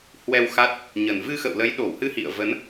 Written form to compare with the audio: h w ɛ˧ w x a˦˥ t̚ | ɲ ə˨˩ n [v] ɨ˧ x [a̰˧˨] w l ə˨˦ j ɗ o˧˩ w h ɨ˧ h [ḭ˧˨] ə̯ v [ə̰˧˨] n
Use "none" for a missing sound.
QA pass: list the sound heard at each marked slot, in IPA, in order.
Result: v, ə̰˧˨, ḭ˧˨, ə˨˦

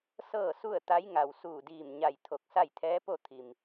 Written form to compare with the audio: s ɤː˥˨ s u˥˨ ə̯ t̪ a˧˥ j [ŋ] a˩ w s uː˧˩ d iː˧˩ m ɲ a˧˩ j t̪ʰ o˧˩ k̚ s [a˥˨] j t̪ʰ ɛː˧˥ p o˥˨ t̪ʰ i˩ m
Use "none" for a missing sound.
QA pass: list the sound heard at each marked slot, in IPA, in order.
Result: ŋ, a˥˨

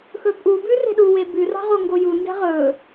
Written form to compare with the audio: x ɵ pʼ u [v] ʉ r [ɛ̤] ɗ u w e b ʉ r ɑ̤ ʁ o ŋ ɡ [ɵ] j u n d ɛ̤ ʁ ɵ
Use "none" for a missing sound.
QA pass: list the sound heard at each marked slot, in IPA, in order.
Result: b, e̤, o

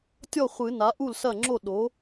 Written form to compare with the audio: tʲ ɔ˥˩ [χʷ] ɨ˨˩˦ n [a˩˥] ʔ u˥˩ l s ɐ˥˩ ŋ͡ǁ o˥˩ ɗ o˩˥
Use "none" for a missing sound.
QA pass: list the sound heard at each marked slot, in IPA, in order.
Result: χʷ, a˩˥

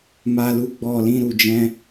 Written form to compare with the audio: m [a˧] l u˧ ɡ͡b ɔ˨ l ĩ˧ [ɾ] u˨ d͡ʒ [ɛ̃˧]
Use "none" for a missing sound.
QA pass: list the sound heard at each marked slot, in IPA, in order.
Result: a˧, ɾ, ɛ̃˧

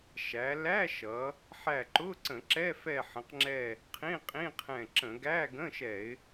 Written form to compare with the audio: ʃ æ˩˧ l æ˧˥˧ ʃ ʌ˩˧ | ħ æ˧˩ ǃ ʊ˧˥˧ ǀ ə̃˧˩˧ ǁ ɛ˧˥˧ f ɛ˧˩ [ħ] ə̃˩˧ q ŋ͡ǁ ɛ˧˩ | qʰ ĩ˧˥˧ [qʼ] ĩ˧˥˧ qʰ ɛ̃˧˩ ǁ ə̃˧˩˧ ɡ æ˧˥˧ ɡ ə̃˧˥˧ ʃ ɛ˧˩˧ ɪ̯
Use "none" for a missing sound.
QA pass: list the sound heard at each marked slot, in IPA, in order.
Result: ħ, qʼ

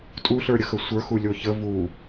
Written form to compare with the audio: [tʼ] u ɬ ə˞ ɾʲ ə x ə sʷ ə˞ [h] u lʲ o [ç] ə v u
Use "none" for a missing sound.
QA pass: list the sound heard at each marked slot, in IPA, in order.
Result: tʼ, x, ç

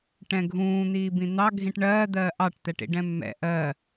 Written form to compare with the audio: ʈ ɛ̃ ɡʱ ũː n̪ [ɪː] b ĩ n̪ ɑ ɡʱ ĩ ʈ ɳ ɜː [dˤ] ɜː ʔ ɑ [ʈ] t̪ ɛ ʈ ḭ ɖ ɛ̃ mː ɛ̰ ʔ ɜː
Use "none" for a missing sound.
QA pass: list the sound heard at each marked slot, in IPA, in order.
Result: iː, d̪, ʈ

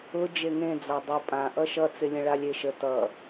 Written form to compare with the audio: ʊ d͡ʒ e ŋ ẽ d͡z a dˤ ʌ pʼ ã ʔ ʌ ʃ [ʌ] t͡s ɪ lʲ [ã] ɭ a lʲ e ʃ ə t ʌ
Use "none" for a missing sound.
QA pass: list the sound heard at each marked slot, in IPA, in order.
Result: ʌ, ə̃

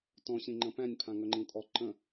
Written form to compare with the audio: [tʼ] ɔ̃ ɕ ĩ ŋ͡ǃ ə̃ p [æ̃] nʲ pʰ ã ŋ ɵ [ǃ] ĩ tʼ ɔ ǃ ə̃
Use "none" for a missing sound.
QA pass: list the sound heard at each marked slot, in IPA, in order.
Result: t, æ̃, ŋ͡ǃ

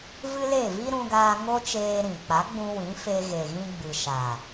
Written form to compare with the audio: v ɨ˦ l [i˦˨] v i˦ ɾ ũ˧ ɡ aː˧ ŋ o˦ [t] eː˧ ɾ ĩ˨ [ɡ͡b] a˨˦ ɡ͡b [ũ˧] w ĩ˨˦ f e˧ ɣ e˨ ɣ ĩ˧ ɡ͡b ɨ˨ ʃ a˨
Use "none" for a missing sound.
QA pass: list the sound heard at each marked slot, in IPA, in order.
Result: e˦˨, t͡ʃ, k͡p, ũ˧

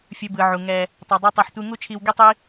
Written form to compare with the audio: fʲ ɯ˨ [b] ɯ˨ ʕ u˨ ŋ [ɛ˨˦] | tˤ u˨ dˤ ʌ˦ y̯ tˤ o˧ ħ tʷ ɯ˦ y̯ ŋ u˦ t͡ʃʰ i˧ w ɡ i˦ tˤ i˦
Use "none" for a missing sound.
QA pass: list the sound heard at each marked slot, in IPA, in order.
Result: b, ɛ˧

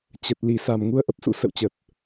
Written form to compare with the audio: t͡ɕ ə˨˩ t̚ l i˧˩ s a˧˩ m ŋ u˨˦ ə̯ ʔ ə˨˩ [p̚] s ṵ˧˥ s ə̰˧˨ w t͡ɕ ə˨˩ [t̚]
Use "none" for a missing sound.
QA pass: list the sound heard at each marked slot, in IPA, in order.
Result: p̚, t̚

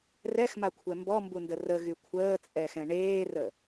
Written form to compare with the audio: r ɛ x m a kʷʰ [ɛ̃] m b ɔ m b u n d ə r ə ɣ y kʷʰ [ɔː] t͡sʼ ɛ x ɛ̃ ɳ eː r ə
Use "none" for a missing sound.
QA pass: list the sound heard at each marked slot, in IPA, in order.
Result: ɛ, əː

